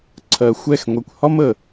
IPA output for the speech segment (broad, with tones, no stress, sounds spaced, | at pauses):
ǀʰ ɜ˨ xʷ ɛ˦˨ x ŋʷ ɛ˨ kʷ h ɒ˦ m ə˨